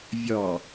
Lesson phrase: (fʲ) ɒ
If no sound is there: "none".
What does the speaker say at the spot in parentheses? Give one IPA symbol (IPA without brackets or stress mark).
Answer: vʲ